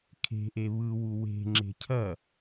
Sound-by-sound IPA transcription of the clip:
kʰ e̤ ʔ e β ɯ w u w e̤ ŋ͡ǁ e̤ cʰ ɐ

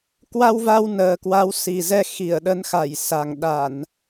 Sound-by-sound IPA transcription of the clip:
k w a˧ w v a˧ w n əː˨˩ k w a˨˦ w s i˨˩ z ɛ˧ x i˧˩ ə̯ ɗ ə˨˦ n x a˧˩ j s a˨˩ ŋ ɗ a˧˩˨ n

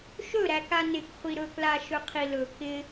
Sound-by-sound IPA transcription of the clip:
ʃ ɵ ɾ æ k a n ɪ k χʷ i ɾ ɵ k l a ʃ ɵ qʰ i l ɵ k ɪ

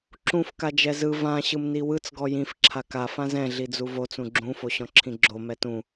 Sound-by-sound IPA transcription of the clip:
ǁ ũ f k a d͡ʒ ɛ z ɯ v ã ɕ ɯ m n i w ɯ t͡s ɡ ɔ j ĩ f ǁʰ a k a f ã z ɛ̃ ɮ i d͡z u v o t͡s ũ ɡ͡ǁ ũ f o ɕ ɔ̃ ǁʰ ĩ ɡ͡ǁ o m ɛ t ũ

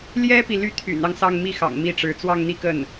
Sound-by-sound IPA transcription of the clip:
l j ɛ˥ p i˨ l y˥˩ t̪ʰ y̰˨˩ n ɑ˦ ŋ s ɑ˥˧ ŋ m i˥˩ x ɑ̰˨˩ ŋ m i˥˩ ʈ͡ʂ ɻ̩˧˥ t͡s w ɑ˥˧ ŋ n̪ i˥˧ k ə˥˩ n

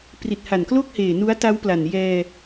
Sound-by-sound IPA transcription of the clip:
p r i˨˩ t̚ h a˨˩ n k l o˥˩ k̚ h eː˨˩ n u˦˥ a̯ t a˦˥ w p l a˨˩ n j ɛː˧

